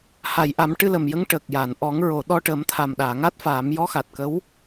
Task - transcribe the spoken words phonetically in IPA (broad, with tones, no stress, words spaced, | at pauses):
ha˨˩˨j ʔa˨˩˦mʈɨ˧lə˨˩mjə˧˥ŋ ʈə˨˩k̚ja˨˩˨nʔɔ˨˩˦ŋ ɹo˨˩˨ɗɔ˧ʈə˨˩˦m t̪ʰa˨˩mɗaː˨˩˨ŋa˦˥t̚faː˨˩˦m jɔ˧˥xa˨˩t̚kə˧˥w